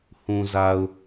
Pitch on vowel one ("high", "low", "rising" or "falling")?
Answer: low